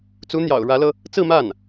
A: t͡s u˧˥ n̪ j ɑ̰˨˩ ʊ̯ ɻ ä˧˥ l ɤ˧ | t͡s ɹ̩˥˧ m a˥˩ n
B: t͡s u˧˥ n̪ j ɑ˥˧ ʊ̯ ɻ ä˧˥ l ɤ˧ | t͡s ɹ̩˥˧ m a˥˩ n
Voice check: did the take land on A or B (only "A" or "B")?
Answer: A